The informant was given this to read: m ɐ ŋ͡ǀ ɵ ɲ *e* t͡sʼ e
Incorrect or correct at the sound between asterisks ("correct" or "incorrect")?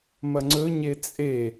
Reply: correct